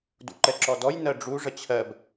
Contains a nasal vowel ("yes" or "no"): no